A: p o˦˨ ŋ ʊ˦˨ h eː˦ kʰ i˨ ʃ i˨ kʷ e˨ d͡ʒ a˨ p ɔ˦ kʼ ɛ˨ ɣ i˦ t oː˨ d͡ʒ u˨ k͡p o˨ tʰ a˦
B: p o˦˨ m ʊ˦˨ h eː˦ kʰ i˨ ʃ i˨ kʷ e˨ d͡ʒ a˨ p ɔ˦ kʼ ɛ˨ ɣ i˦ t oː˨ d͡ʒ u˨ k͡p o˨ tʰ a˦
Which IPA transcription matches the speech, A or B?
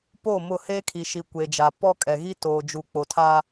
B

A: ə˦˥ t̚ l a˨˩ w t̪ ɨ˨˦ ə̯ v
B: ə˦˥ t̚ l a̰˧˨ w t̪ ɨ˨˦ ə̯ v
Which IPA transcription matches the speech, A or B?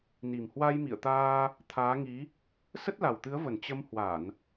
A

